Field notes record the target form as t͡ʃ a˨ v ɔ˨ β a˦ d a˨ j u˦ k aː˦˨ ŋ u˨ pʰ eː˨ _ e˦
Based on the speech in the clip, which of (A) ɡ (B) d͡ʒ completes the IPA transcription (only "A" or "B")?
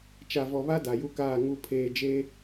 B